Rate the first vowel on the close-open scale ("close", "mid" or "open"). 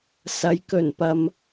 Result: open